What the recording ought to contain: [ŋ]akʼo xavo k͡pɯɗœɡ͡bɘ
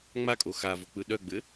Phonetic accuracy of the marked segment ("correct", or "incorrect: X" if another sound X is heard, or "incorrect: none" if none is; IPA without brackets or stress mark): incorrect: ŋ͡m